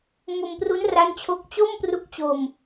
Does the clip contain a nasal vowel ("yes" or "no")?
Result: no